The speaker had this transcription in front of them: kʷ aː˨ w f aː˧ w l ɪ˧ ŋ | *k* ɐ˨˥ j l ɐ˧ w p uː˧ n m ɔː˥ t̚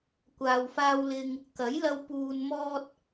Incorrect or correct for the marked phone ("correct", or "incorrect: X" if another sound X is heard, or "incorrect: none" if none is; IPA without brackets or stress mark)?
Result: correct